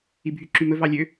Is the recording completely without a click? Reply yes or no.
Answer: no